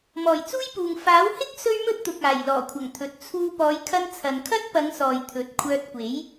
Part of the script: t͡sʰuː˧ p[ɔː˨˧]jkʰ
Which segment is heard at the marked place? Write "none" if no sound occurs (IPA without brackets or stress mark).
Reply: ɔː˨˧